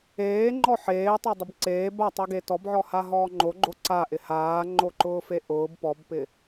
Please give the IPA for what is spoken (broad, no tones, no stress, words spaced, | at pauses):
eːŋ͡ǃɔ ħeːtˤʊ dˤɪbǀeːb atˤoɡe tɔbʕɔha ɦɔːŋ͡ǃoɡ͡ǃo ǀaʔɪ haːŋ͡ǃoǃʊː feʔʊːb pɔbpɪ